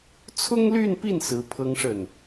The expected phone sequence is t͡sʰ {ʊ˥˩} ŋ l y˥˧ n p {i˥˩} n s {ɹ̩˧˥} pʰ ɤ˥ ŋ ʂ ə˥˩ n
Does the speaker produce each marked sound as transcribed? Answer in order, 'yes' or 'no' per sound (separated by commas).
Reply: no, yes, yes